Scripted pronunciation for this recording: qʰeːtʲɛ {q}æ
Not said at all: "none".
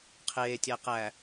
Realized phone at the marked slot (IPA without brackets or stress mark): q